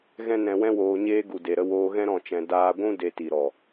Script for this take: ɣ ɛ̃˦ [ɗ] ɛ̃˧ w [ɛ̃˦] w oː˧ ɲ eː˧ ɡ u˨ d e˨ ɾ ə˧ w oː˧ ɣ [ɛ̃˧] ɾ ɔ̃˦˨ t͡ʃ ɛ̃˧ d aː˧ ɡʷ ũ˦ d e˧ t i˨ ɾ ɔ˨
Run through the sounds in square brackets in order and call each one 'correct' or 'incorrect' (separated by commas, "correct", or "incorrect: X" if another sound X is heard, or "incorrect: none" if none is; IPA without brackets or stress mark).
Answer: incorrect: n, correct, incorrect: ɛ̃˦